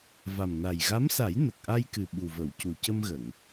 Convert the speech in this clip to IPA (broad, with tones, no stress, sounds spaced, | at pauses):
v a˨˩ m n a˨˩ j ɣ a˧˥ m s a˨˩˦ j n ə˨˩ k̚ ʔ a˧ j k ɨ˨˩ ɓ u˨˩ v ə˨˩˨ w c u˨˩ c ə˧ m ɣ ə˨˩˨ ŋ